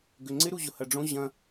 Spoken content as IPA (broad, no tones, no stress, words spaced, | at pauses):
ɡʏŋ͡ǀɪ ɾuʑʊhɐɖ͡ʐõ ʑɐ̃